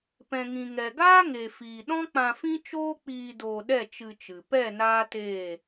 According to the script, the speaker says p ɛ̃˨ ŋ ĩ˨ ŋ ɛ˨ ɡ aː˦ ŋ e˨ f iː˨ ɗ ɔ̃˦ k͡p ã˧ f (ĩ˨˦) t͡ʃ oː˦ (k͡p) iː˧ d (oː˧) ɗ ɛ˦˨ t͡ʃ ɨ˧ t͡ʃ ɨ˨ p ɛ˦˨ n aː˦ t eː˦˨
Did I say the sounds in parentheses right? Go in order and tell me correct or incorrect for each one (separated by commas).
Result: incorrect, correct, correct